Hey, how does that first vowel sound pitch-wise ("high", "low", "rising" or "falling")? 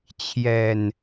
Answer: low